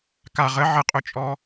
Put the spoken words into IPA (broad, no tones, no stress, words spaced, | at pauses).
ka ʁə ʕəqʼɵt͡ʃʼɔ